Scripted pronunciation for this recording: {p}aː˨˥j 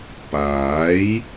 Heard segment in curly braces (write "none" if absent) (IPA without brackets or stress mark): p